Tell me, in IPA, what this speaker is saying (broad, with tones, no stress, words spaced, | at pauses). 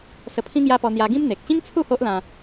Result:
sə˧pʰĩ˦ŋja˦pɔ˧ n̪ja˧ɡĩ˦mn̪e˨k̚ ɕĩ˦ŋt͡sʰu˥˧ ho˦ʔlã˧